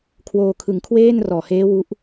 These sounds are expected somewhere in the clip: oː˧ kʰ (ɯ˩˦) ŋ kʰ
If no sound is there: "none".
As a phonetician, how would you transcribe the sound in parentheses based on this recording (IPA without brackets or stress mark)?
ɯ˩˦